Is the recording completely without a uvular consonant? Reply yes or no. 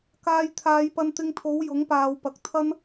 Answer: yes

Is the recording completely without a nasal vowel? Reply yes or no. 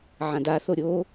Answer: no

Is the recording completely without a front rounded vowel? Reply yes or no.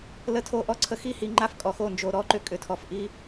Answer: no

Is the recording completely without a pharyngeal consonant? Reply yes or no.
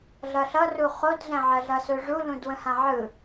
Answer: no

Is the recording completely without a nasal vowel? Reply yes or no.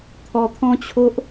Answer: no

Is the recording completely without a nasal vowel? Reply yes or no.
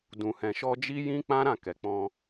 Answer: no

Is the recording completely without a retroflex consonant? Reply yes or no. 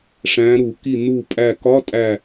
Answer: no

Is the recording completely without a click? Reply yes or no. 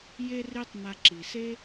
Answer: no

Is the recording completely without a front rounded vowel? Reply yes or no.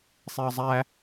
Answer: yes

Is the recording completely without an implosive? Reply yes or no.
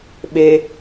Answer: no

